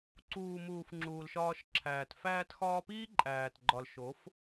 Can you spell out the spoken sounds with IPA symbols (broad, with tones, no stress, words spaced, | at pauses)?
ǀuː˨muː˨f ŋ͡ǁuː˨lʃɒː˧ʃǁʰæː˨t fæː˧txɒː˧piː˦ ǃʼæː˨t ɡ͡ǃɒ˨lʃo˨˦f